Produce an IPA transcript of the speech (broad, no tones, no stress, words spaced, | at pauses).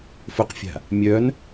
fʊqfʲa̤ | mʲœn